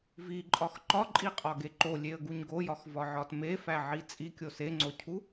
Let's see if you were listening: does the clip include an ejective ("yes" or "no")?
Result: yes